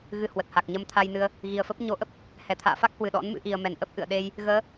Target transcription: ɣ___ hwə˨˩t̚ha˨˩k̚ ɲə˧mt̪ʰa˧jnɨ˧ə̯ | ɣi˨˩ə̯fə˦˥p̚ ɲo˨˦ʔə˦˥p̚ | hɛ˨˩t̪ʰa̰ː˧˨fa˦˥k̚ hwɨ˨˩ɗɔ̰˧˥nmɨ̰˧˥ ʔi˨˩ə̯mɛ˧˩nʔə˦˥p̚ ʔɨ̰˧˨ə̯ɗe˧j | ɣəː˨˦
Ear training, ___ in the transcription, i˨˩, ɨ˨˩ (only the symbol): ɨ˨˩